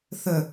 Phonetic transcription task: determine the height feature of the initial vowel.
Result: mid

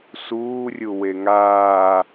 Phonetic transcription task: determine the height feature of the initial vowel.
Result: high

